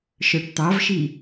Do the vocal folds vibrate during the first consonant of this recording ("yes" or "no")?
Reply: no